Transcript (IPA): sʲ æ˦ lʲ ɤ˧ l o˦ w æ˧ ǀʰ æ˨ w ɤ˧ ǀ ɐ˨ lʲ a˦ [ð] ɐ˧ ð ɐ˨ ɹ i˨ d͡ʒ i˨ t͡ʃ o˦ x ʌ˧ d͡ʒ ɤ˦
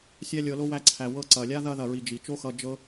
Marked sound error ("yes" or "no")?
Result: no